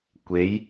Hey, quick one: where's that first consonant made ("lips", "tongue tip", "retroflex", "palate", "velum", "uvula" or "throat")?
velum